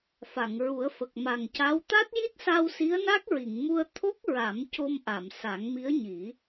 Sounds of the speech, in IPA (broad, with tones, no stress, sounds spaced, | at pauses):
f a˨˩˨ ŋ ɹ u˨˩˦ ə̯ f ə˨˩ k̚ m a˨˩ ŋ c a˧˥ w t̪ a˦˥ t̚ j i˦˥ t̚ s a˧ w s i˧˥ ə̯ n a˦˥ k̚ ɹ i˨˩˨ ŋ m u˧ ə̯ t̪ʰ o˦˥ k̚ ɹ a˨˩˦ m c o˧ m ʔ a˨˩˨ m s a˨˩˦ ŋ m i˧˥ ə̯ ɲ i˨˩˦